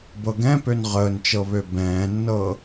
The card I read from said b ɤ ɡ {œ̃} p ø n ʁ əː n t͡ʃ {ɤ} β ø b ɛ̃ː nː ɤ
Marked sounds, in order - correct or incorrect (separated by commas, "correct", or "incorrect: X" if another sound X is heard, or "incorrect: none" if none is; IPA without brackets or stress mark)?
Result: incorrect: ɛ̃, correct